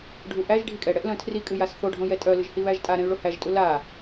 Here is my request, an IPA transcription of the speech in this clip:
ɖʱuʔæʒ ɖʱikʼɛɽɛʔ lœ̃tʰri kʼɨjasθo ɖʱõjɛtʼœlɨʒ hiβæʒtʼaɾɛ̃y̯ ɭohæʒtʼu la

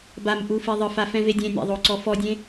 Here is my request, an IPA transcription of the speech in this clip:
bamʔu fiðˤɯfa fɛ̃vedʲẽnʲa̰ ðˤoǀɔfɔdʲẽ

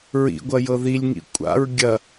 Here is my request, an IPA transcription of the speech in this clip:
ɹḭɡʷɐjɤ ðilʲŋḭ kʷʼa̰ɹ ɡʲɐ

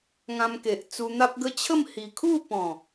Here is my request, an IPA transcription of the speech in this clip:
ŋã˧mke˨ʔ t͡su˧n̪a˦p̚ɡə˦ t͡ɕʰə˥˧m hi˨˩ kʰu˥˧ pɔ̃˨˩

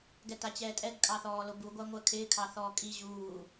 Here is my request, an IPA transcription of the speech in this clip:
ɡɛtat͡ɕɛːtʼɛɡ kʼɑθɔːlobu ɡʷaŋʷɜkʰɪː kʰɑθɔːkʼi ʑuː

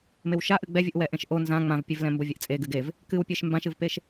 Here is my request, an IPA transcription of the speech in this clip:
mewʃa ʔɨɡ͡bɛvʲɨʔ wɛʔẽʃʔo nzã ŋ͡mãvpʲevlɛ̃ mbovʲeʔt͡sʼe ɡɨɡev | kɨwpʲeʃ mbãʃɨvpeʃ

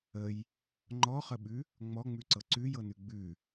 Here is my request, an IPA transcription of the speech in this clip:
əj | ŋ͡ǃɔχəɓʉ | ŋ͡mɔŋ͡mʉǀɤ ǀʉjɤnʉ ɡ͡bʉ

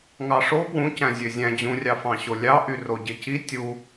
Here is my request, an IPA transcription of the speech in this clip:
ŋɑʂo pwũ cæ̃zʲøzʲæ̃ d͡ʑũrʲɑfɑ̃ɕo lʲɑ ʔyroɟeci tʲu

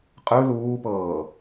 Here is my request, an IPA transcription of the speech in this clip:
qʼɯ luːpɤː

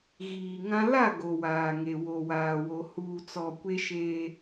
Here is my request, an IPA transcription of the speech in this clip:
ɣiː˨ŋã˦ la˦˨ ɡo˨waː˨ŋe˨ wo˨waː˨wo˨ huː˨t͡sɔ˨ kʷe˦ʃeː˦

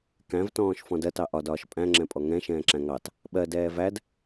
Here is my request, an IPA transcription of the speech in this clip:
kæ̃vtɔ̃ːʃ fɔ̃dɜtɑ ʔɒdɒːʃ pʼæ̃ŋ͡ǁɛ̃pʼɔ ŋɛ̃ ʃɛ̃ːǁæ̃ŋɑt | ɓɜ dɛːvæd

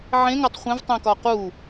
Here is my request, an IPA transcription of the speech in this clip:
ʕẽŋatˤ χʷẽvtˤẽkɒ qu

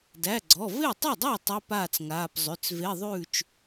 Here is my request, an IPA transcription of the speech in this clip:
dæ˩˧˩ɡ͡ǀɔ˩˧˩ ve˥˩tˤa˥˩dˤæ˥˩ tˤʉ˧˥˧paː˥˩t͡sŋaː˩˧˩p zˤʉ˩˧˩t͡sve˧˥˧ ðˤʉː˥˩t͡ʃ

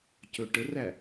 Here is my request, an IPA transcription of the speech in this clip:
cɵʈəræ

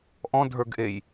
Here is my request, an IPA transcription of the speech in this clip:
ʔɔ̃dʱə˞ɡʔej

